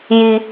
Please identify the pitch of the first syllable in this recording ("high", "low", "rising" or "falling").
high